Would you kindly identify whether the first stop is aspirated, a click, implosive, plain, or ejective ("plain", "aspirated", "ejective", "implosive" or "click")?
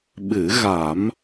implosive